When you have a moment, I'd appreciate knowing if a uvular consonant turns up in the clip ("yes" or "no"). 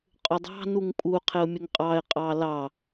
yes